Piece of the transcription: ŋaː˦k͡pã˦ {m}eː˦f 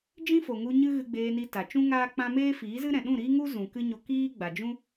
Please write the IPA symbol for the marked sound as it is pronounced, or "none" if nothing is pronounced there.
m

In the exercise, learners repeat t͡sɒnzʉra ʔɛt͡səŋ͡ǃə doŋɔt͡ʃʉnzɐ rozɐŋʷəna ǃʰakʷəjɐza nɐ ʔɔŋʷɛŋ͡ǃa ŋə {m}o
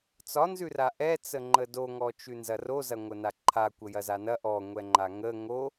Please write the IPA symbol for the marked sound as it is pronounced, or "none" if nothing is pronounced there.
ŋ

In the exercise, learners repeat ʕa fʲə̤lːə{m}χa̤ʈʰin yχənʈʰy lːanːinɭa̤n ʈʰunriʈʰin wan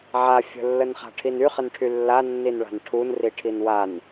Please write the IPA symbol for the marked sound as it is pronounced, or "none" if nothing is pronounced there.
n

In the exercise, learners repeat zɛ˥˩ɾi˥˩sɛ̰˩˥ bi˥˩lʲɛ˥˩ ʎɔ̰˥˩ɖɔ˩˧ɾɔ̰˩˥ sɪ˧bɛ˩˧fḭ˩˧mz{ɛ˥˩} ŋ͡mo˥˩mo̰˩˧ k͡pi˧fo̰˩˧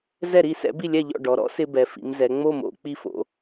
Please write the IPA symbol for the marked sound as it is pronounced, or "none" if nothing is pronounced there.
ɛ˩˧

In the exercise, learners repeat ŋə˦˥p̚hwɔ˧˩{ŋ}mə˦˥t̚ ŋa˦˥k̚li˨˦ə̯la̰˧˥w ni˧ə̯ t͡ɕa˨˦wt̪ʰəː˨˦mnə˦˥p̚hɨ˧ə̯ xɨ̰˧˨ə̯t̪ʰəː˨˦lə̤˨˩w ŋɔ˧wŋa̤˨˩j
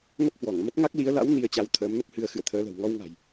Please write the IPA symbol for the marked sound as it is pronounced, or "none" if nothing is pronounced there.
ŋ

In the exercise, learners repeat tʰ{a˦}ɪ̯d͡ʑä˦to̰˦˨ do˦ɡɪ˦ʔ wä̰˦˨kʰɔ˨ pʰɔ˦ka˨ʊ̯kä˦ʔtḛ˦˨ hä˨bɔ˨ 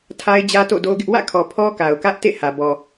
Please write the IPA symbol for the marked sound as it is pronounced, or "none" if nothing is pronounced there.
a˦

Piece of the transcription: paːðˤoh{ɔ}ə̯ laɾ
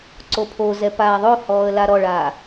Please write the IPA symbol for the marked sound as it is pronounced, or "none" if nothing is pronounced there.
ɔː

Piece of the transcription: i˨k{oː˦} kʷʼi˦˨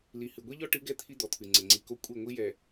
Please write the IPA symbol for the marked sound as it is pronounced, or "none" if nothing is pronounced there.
o˦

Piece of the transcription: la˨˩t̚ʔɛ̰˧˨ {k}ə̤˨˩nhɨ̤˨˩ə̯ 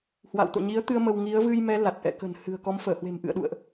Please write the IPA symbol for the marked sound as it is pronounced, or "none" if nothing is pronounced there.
k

